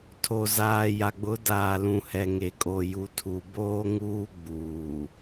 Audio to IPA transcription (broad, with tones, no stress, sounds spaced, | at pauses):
tʰ o˨ z aː˨ j a˨ ɡ͡b ʊ˨˦ d aː˨ l ũ˨ h ɛ˨ ŋ e˨ kʼ o˨ j u˨ tʰ u˨ b oː˦ ŋ uː˦ ɡ͡b uː˨